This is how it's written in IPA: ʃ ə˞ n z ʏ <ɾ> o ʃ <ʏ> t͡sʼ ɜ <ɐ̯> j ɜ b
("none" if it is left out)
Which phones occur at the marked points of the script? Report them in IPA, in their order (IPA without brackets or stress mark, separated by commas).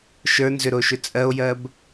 ɾ, ʏ, o̯